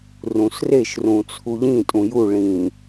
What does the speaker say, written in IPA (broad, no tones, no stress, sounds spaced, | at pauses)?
r ũ s r e ʃ r ũ t͡sʰ u ʎ ĩ tʼ ũ j u ɭ ĩ